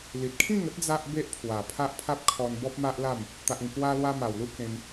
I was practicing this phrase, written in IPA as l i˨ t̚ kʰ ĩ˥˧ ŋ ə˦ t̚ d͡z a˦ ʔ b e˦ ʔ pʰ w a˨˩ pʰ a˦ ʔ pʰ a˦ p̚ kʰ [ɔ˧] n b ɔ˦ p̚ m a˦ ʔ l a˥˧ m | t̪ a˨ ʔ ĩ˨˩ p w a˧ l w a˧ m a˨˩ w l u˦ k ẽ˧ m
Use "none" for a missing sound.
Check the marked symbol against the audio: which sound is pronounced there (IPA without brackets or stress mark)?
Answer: ɔ˧